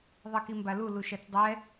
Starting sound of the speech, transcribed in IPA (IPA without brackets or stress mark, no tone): ðˤ